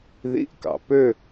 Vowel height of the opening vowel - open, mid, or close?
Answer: close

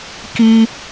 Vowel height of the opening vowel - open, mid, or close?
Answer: close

